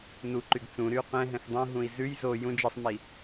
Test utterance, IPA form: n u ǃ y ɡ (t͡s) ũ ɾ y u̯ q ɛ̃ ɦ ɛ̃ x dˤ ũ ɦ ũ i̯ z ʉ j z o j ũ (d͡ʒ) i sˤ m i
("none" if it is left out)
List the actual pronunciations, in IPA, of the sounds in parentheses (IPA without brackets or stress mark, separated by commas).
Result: t͡s, d͡ʒ